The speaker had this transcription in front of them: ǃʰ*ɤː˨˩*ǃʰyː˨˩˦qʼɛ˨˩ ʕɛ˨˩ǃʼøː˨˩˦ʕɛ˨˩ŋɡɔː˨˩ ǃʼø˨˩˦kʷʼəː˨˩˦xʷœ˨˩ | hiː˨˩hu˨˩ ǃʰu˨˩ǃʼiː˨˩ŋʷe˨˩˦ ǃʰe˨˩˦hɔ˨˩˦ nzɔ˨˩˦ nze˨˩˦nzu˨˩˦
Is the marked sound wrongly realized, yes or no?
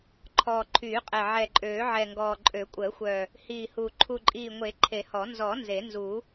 yes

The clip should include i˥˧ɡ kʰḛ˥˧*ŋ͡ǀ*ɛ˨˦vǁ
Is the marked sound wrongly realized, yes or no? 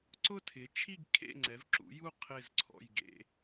no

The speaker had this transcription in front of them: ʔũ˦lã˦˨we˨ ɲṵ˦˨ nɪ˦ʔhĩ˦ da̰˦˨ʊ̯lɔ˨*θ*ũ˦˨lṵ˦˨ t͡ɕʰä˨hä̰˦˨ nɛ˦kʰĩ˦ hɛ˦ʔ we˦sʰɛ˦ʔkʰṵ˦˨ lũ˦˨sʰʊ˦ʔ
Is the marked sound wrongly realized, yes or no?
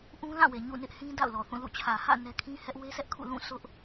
no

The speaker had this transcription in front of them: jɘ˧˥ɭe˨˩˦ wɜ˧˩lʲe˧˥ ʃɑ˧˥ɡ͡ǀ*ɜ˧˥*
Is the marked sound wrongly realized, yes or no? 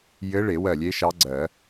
yes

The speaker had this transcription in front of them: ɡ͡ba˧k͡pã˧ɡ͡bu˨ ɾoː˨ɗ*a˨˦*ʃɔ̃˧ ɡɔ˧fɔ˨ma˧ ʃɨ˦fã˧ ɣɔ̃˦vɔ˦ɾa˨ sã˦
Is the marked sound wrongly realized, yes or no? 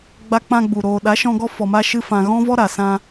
no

